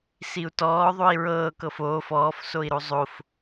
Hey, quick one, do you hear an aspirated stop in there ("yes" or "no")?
no